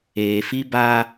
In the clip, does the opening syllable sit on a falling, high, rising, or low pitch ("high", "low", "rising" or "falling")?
low